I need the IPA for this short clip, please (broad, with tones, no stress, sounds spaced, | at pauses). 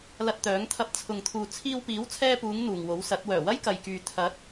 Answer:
l ɐ˧ t̚ t̪ œː˨˥ ŋ t̪ʰ ɐ˧ p̚ t͡sʰ ʊ˨ ŋ t̪ʰ uː˨ t͡sʰ iː˧ w p iː˨˥ w t͡sʰ ɛː˧ p uː˨˧ ŋ n̪ uː˨ ŋ w o˨˥ w s ɐ˨˥ t̚ w œː˨˩ w ɐ˥ j k ɐ˨ j k yː˨ t̪ʰ ɐ˨˥ t̚